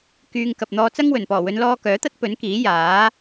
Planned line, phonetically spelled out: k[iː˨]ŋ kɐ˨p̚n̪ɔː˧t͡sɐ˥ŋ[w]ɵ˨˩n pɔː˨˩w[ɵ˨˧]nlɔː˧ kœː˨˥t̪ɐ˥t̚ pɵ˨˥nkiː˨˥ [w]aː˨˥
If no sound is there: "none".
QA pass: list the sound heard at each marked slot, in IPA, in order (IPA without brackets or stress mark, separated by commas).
yː˨, w, ɵ˨˧, j